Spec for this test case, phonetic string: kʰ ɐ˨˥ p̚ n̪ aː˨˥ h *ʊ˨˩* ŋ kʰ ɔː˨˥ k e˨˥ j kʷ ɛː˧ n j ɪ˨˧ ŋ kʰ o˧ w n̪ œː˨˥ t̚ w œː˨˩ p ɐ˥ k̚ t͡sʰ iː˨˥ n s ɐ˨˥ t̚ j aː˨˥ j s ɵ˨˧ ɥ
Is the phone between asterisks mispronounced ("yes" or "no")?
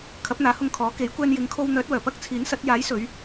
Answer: yes